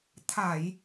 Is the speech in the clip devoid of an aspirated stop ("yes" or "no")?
no